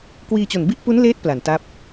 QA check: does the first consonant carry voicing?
no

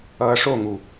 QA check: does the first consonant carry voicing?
no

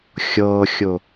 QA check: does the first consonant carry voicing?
no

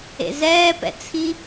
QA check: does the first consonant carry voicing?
yes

